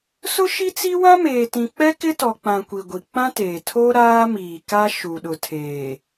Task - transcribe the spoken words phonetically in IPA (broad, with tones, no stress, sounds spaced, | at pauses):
s ʊ˦ ʃ i˦ t͡s i˦ w ã˦ m eː˨ t ĩ˨ k͡p ɛ˦ k ɪ˦ t ɔ˨ k͡p ã˨ kʷ i˨ ɡʷ i˨ k͡p ã˦ t eː˨ tʰ o˦ ɾ aː˦ m iː˨ k a˦ ʃ u˨ ɗ ʊ˨ tʰ eː˨